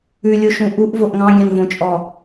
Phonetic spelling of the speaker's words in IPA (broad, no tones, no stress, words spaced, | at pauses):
ʉlʲoʃũ ʔuʔvoʔ ŋɑ̃ɡʲɑ̃nvõt͡ʃʼɔ